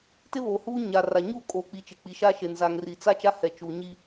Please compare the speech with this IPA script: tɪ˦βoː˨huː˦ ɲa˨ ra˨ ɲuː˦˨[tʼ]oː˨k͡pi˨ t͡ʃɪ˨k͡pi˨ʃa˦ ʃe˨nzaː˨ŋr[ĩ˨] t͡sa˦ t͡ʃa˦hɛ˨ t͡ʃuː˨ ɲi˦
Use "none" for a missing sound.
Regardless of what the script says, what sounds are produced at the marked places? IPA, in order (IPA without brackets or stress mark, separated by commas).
kʼ, i˨